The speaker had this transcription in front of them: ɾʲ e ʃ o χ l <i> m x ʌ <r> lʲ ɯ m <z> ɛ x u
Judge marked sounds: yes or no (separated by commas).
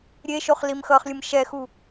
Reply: yes, no, no